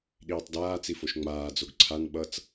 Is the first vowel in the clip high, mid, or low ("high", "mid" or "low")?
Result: high